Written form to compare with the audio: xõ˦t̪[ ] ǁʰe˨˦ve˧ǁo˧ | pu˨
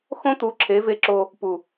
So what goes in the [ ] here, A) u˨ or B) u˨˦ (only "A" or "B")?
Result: B